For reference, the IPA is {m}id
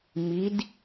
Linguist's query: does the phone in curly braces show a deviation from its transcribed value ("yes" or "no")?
no